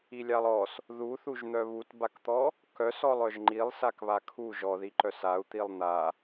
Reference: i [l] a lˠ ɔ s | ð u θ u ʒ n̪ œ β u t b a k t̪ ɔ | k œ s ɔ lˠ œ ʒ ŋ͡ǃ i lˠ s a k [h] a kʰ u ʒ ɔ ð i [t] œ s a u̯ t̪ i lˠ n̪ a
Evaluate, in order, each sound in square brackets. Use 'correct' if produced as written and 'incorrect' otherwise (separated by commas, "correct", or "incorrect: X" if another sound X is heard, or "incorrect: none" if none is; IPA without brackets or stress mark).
incorrect: lʲ, incorrect: β, incorrect: ǃ